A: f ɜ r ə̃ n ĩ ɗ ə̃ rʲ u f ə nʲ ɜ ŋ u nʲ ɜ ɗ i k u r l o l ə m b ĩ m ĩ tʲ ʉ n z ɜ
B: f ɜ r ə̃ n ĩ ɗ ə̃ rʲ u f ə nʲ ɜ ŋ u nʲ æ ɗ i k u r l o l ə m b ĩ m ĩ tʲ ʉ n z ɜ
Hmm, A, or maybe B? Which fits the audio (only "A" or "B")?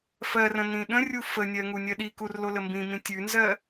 A